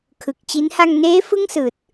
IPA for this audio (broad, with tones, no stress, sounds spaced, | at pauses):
kʰ ɯ˨˩ k̚ t͡ɕ i˦˥ n h a˧ ŋ n eː˦˥ f ɯ˥˩ ŋ s ɯː˨˩ t̚